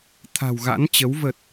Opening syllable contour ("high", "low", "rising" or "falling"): low